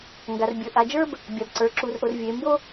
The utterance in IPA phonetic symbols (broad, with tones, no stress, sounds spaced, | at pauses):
ŋ ɡ a˨ r bʲ ə˞˨ ʔ a˨ d͡ʒ ə˞˦ b | bʲ a˨ b ǀ ə˞˨ ǁ u˨ r ʔ o˨ r vʲ e˨ m b o˦